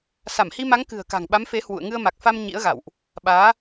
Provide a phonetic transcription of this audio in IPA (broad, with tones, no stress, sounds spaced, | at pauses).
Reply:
s a˧˩ m h i˧ m a˨˦ ŋ k ɨ̤˨˩ ə̯ k a̤˨˩ ŋ ɓ a˨˦ m f e˨˦ h w ṵ˧˨ ə̯ ŋ ɨ˧ ə̯ m a˨˩ k̚ f a˧ m ɲ ḭ˧˥ ə̯ ɣ a̰˧˨ w ʔ | ɓ aː˨˦